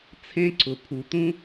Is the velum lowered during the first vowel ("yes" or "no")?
yes